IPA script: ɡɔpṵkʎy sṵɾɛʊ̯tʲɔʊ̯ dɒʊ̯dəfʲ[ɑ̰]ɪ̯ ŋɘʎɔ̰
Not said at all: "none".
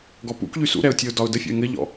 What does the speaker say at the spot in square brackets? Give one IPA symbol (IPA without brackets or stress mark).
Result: ɔ̰